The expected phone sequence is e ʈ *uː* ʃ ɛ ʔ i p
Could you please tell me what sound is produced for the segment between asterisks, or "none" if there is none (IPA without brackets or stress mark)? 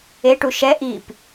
u